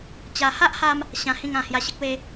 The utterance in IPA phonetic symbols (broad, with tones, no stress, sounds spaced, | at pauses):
t͡ɕ a˧ h a˦ ʔ h a˧ m | ɕ ã˧ h ĩ˥˧ ŋ ã˧ h j a˧ ɕ ə˦ k̚ w e˦